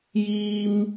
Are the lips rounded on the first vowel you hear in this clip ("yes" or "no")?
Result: no